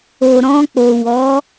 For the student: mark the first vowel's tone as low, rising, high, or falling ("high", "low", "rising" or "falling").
low